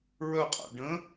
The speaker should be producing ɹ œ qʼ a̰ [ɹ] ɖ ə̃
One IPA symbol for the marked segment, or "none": none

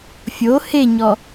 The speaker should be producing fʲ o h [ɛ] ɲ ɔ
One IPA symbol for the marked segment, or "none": e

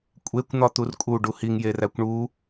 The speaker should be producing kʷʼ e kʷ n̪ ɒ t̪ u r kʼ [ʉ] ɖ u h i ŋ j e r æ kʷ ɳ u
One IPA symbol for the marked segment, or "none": u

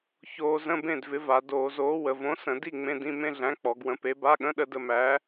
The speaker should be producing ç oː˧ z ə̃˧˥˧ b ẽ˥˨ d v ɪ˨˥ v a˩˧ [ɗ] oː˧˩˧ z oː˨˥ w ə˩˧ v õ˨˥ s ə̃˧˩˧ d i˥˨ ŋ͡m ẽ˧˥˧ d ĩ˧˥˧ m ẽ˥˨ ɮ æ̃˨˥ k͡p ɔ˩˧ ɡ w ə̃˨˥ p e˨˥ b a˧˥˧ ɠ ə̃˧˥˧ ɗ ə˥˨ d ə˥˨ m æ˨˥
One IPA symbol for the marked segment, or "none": d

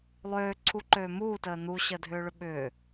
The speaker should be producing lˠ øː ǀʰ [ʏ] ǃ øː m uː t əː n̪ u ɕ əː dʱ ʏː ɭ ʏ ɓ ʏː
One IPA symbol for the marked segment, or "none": u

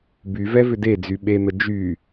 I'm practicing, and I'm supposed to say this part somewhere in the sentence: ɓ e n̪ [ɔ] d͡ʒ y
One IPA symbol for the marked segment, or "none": ə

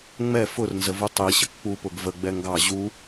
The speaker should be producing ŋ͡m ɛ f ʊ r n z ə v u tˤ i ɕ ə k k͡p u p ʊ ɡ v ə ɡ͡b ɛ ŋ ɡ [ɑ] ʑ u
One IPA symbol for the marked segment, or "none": ɑ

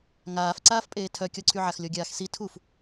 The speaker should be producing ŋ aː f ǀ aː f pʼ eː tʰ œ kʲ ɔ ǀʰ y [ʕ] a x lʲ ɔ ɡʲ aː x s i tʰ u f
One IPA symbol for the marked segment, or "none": ʕ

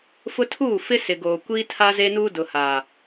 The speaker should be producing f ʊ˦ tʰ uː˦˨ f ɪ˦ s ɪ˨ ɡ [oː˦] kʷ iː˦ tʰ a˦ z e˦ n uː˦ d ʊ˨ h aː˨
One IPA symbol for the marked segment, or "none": oː˨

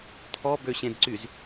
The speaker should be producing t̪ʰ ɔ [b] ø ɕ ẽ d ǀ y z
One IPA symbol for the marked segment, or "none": b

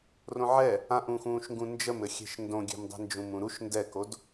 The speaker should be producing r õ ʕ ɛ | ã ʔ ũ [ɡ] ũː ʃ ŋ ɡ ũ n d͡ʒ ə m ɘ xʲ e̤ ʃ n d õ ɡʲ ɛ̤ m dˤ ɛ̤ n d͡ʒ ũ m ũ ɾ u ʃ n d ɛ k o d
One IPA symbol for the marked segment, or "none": x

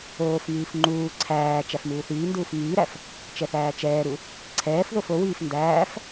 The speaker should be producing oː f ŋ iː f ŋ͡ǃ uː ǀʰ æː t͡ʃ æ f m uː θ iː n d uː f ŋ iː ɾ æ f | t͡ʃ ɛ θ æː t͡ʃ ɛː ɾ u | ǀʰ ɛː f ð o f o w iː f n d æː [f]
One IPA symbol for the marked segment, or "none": f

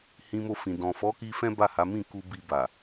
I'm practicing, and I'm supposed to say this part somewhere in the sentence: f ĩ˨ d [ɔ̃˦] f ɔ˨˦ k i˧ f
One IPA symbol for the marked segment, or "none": ɔ̃˨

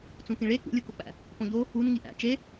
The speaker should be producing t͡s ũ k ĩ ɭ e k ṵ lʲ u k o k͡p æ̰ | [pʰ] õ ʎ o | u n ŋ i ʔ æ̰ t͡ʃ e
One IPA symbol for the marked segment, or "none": p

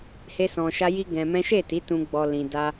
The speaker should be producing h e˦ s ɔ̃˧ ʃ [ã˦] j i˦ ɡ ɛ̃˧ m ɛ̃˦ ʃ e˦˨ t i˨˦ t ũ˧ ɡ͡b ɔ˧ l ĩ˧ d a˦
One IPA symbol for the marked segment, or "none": a˦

